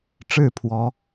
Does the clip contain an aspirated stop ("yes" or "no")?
yes